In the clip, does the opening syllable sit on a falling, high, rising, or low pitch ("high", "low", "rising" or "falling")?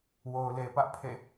low